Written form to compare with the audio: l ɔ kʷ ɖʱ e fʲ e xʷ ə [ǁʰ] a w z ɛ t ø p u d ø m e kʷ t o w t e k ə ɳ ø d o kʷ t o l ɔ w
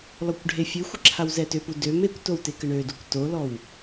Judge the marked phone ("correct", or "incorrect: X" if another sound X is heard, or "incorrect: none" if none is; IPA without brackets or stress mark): correct